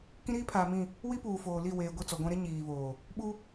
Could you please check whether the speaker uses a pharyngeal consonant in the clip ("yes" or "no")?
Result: no